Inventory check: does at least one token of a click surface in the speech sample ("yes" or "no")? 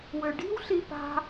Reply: no